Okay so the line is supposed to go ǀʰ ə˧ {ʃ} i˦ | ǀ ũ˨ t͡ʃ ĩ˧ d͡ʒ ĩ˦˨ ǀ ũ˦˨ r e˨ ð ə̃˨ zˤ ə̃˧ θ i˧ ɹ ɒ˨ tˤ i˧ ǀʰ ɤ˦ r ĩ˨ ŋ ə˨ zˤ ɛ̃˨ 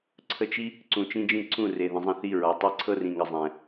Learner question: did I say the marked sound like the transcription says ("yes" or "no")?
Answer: no